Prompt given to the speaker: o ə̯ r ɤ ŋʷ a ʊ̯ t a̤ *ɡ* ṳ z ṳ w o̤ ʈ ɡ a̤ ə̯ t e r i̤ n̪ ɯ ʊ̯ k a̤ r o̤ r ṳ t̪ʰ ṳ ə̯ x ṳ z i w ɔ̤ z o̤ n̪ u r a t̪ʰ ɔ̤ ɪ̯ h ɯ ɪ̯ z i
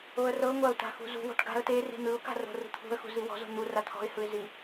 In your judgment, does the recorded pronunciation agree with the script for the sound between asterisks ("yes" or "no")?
no